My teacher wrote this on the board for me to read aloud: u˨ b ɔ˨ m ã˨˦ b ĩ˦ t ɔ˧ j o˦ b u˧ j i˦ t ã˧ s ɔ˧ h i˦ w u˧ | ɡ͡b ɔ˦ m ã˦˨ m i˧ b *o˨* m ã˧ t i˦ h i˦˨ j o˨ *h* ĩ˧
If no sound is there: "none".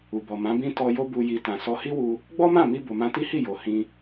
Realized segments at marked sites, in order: o˨, h

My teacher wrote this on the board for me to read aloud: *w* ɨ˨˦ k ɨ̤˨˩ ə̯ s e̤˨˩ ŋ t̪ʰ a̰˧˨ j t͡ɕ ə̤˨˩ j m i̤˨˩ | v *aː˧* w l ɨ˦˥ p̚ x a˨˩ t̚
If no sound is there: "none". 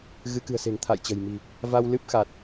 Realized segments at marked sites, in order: ɣ, a˧

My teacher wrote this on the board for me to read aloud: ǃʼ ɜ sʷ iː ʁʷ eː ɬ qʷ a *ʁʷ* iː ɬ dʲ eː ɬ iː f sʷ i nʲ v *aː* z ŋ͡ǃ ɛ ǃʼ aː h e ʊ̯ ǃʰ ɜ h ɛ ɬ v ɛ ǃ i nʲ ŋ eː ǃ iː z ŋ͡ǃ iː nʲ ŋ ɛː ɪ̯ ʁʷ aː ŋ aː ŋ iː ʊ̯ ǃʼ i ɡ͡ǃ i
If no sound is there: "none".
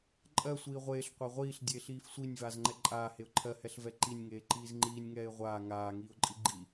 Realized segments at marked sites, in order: ʁʷ, aː

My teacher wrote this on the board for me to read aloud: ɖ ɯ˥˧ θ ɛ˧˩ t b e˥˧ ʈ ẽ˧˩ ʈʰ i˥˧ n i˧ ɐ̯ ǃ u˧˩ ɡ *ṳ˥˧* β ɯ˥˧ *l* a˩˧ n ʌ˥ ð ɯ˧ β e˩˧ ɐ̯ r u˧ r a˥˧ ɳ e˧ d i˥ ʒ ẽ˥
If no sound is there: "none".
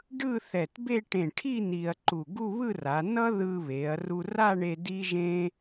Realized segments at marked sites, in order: u˥˧, r

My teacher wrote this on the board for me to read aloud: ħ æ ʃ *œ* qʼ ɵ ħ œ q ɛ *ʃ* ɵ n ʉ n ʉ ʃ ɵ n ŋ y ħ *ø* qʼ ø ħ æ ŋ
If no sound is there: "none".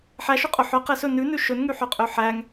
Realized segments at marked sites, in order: ø, s, œ

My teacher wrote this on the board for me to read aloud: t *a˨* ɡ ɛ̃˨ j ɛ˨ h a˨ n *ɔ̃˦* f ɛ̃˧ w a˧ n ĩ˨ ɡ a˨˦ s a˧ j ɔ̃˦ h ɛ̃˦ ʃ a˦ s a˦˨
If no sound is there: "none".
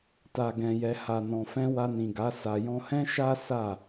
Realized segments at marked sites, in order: a˨, ɔ̃˨

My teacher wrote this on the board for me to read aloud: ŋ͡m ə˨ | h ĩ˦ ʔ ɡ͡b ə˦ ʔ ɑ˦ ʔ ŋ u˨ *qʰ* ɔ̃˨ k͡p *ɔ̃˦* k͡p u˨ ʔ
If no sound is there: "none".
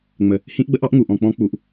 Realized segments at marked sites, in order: ʔ, ɔ̃˦

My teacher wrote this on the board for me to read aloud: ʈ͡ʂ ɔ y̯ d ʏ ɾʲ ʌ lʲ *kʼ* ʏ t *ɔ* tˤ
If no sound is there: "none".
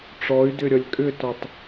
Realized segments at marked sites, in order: kʼ, ɔ

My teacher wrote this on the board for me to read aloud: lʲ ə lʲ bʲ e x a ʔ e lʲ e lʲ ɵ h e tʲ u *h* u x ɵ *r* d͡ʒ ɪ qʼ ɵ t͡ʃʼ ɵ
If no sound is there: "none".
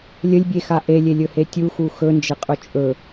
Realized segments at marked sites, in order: x, n

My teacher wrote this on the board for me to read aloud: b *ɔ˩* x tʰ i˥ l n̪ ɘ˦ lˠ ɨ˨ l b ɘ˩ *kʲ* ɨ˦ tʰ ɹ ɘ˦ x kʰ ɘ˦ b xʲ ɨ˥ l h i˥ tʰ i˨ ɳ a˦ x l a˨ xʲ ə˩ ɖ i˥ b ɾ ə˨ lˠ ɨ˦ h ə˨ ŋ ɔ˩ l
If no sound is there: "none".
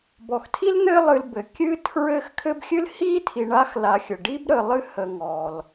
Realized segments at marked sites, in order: ɔ˩, kʲ

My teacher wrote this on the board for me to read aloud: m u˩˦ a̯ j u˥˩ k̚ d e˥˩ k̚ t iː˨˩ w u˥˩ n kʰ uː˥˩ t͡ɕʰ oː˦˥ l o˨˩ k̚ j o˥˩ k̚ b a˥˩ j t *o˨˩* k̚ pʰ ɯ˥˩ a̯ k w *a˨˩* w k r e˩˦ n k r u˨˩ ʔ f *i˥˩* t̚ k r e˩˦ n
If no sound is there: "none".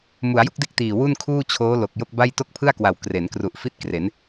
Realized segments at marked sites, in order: o˥˩, a˨˩, i˥˩

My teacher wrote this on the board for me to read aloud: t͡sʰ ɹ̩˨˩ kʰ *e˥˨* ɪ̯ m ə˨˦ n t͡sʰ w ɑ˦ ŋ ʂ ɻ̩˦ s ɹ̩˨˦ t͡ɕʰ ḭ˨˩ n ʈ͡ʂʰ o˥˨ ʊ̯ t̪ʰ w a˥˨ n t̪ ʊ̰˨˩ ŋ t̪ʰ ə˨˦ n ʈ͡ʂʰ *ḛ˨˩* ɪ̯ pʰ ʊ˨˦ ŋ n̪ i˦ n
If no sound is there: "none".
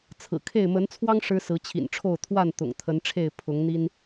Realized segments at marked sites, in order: e˥˨, e˥˨

